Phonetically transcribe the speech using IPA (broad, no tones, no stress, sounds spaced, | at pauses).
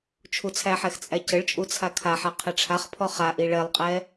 t͡ʃʰ u t͡sʰ æ ħ ɛ x t͡sʼ æ c ə ɭ t͡ʃʼ u t͡sʰ a kʰ a ħ a qʰ ɛ ʈ͡ʂʰ a χ pʰ ɔ χ a ʔ i ɭ ɛ lˠ qʼ ɛ